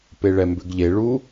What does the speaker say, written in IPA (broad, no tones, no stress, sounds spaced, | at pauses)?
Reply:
p e ɭ ɛ m b ʏ ɡ ʎ e ɭ u